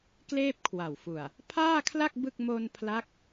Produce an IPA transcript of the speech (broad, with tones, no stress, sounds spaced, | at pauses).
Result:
k l eː˥˩ p̚ kʰ w a˨˩ w f u˨˩ a̯ | pʰ aː˥˩ kʰ l a˥˩ k̚ b ɯ˥˩ k̚ m o˧ n pʰ l a˦˥ k̚